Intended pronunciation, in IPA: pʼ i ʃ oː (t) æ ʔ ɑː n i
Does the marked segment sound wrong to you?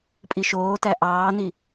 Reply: no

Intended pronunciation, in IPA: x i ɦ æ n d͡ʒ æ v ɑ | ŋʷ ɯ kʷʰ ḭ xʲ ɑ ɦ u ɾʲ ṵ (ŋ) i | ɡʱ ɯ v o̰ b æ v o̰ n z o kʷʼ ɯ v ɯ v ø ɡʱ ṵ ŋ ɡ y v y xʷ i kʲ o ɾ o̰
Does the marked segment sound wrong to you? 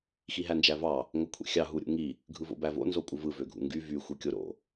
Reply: no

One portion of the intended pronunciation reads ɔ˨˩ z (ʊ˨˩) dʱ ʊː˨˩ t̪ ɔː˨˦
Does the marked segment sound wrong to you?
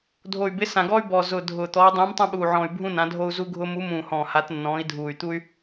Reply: no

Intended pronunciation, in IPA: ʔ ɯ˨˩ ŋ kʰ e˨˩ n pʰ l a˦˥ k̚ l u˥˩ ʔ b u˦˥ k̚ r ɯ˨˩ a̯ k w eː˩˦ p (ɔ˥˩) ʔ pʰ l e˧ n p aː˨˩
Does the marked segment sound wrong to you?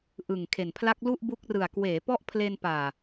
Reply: no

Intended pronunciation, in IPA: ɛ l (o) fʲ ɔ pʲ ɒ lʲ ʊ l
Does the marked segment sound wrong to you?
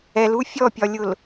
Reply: yes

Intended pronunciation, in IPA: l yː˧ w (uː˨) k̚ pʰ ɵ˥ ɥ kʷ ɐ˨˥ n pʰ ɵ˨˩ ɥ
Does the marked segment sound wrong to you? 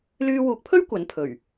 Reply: yes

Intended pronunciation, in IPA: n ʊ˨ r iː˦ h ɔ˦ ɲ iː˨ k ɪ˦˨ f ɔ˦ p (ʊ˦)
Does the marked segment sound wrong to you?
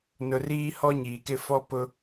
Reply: no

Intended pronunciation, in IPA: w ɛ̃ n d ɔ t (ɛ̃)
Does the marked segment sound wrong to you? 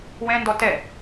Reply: yes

